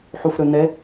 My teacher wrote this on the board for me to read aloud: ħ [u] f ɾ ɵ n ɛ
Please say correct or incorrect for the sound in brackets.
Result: correct